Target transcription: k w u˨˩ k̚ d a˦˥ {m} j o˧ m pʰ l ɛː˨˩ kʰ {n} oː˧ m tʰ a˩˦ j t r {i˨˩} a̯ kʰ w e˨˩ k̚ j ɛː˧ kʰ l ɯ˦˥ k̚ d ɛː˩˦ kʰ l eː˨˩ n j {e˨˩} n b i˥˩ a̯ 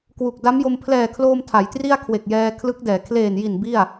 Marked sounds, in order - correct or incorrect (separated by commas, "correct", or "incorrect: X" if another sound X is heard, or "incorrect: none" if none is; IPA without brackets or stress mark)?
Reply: correct, incorrect: l, incorrect: i˥˩, incorrect: i˨˩